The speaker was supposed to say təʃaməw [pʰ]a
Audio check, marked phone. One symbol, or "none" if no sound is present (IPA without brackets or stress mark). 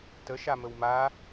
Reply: m